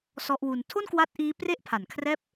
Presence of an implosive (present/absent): absent